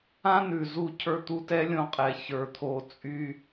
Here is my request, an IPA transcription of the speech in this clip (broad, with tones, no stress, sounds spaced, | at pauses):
ã˥ n ʉ˩ z u˧ cʰ ə˞˧ t̪ u˧ t ɛ˥ lʲ õ˧ qʼ ɛ˩ ç ə˞˩ t̪ʰ o˩ t͡sʼ y˧